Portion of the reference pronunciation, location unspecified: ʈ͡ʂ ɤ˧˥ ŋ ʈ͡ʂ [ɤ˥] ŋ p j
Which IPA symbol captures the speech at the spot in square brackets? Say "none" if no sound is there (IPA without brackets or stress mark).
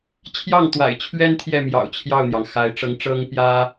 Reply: ɤ˥